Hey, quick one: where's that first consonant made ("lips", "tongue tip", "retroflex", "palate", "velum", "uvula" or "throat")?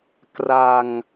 velum